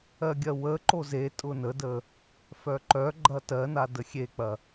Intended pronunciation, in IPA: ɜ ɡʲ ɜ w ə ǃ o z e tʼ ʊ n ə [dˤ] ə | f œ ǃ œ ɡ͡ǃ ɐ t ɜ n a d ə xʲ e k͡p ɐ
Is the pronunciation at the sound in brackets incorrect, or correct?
incorrect